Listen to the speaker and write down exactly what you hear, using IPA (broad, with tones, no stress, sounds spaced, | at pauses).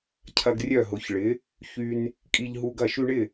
cʰ ɐ˦ ɡ rʲ œ˥˨ ɦ ʊ˨˥ ç ɭ ɪ˨˥ | ç y˦ n | kʼ i˦ ʎ ɦ u˦ ɡ ɐ˥˨ ʃ y˦ ɳ ɪ˥˨